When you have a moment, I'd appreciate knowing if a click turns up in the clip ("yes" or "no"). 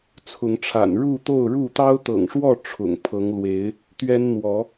no